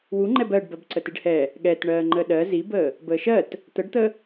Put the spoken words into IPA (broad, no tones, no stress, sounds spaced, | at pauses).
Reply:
w u ŋ͡ǃ ɛ b ɜ ɖ b ɜ b ǀ ə t i ɖ h ɛ | ɠ ɛ t ɳ ɜː ŋ͡ǃ ə ɗ ɜ z i b əː | b əː ʃ ɜ t | t̪ ə ɖ t̪ ə